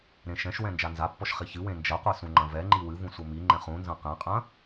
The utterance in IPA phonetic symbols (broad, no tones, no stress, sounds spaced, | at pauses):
ɾ ẽ ʃ ɛ̃ ʃ w ɛ̃ n d͡ʒ a n z a pː ɔ ʃ χ i ç ɨ w ẽ n d͡ʒ ɐ qʷ e s ũ ŋ͡ǃ ɐ̃ v ɛ ŋ͡ǃ i w ɨ v ũ sʷ ɘ m i ŋ͡ǃ ɛ̃ χ ũ n z ɐ̃ q ɛ̃ qʼ ɐ̃